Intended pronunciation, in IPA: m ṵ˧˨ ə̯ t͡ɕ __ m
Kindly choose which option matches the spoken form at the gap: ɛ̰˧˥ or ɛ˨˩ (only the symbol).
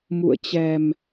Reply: ɛ˨˩